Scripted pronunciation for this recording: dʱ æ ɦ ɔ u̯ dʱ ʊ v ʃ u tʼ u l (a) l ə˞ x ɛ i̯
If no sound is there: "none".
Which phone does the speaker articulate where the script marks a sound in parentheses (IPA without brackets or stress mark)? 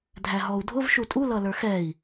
ʌ